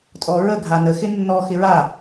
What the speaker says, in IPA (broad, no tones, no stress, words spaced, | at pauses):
tʼɔɹə ɡʱanəxɪ nːɔ xɪɹa